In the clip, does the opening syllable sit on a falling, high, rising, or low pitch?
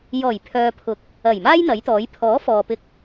low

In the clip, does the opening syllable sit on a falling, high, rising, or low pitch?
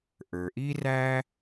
low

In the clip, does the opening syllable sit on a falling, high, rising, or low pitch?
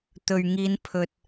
low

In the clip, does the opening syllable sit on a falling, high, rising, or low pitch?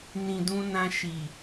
low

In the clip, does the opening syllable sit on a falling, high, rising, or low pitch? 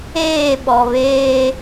falling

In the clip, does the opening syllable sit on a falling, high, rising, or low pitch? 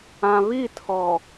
low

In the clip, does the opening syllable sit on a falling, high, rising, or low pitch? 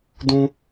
high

